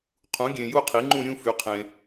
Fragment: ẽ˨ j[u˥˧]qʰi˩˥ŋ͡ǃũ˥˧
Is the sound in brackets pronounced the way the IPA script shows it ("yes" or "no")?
yes